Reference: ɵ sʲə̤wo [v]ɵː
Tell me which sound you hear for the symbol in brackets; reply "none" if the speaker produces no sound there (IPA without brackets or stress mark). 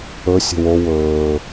w